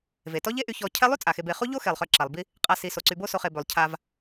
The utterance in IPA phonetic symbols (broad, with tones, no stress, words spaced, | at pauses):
ve˩tɔ˥ʎe˥ ʔy˨çɔ˨ cʰɛ˦lˠy˥ t͡sʼa˩xe˨be˨χu˥ ʎo˥xe˩lˠχœ˨ ǁa˩lˠbi˦ | qʼa˨ si˩ so˩ǀy˨bo˥ so˨χe˨bø˩lˠ cʰa˨v